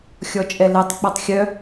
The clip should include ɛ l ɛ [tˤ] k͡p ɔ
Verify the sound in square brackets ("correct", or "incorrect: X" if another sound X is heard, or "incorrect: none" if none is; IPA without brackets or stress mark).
correct